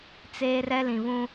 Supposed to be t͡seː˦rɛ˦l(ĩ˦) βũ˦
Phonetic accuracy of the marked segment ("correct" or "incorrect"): incorrect